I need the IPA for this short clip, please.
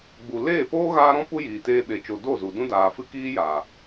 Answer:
ɡ͡b u˨ l eː˦˨ p oː˦ ɣ aː˦ ɾ ɔ̃˦ p u˦ j iː˨ t eː˧ ɓ e˨ t͡ʃ o˨ d o˦˨ z u˨ d ũ˧ d aː˨ f ɨ˧ k iː˦ j aː˨

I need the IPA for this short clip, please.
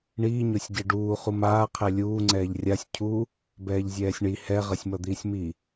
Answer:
ɳ iː ɲ o sʲ ɟ e ɖ uː χ u m aː qʰ ɛ lʲ uː ŋ͡ǀ ɛː ʎ rʲ a sʲ cʰ u | b ɛː ʎ zʲ ɛː sʲ ɳ i h ɛ ʁ ʌ sʲ m ʌ d̪ iː sʲ m i

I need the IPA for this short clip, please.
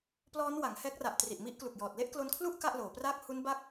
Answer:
p l ɔː˦˥ n w a˩˦ ŋ h ɛː˦˥ k̚ r a˨˩ ʔ t r i˨˩ ʔ m i˦˥ ʔ k l u˨˩ k̚ j ɔː˨˩ t̚ l e˥˩ ʔ k l o˧ n kʰ l u˥˩ ʔ k a˥˩ ʔ l oː˩˦ p r aː˥˩ k̚ h u˦˥ n b aː˦˥ k̚

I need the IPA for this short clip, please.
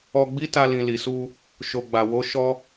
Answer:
ɔ˧ ɡ͡b i˦ t a˧ l ĩ˨ l i˨ s u˧ | ʃ o˨ ɡ͡b a˨ w o˨˦ ʃ ɔ˦

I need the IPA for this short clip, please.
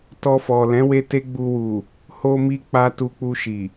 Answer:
t ɔ˧ f ɔ˨ l ɛ̃˨˦ w e˧ t e˦ ɡ͡b u˧ w u˨ | h o˧ m i˧ k͡p a˧ t u˧ k͡p u˧ ʃ i˨

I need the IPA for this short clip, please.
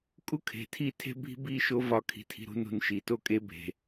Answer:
kʼ u˦ kʰ e̤˨ tʰ i˦˨ tʰ e̤˦ bʱ i̤˦ b i˦ ʃ o˦ v ɒ˧ kʰ i̤˧ tʰ i̤˧ ɾ ṳ˦ n ṳ˧ n ʃ i˨ t o˦ kʼ e˦ bʱ e̤˨

